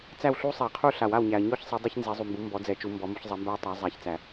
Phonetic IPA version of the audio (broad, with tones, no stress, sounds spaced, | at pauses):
t͡s æ˥˧ w ɬ u˥ sˤ ɛ˨˩˦ qʰ u˥˧ ɬ a˨˩˦ w a˨ w ɲ æ˨ ɐ̯ ɲ ɔ˥˧ ç sˤ e˨˦ dˤ ɛ˥ ç n z e˨˦ zˤ u˨ m b u˨˦ m b ɔ˨˦ d͡z ɛ˨˩˦ t͡ʃ u˨˦ m b ɔ˨˦ m u˨˦ ç zˤ ɛ˨˦ m b æ˥ ɐ̯ tˤ a˨˦ zˤ æ˨ ç t͡s æ˨˩˦